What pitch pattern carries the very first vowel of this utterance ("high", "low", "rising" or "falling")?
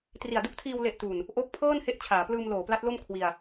low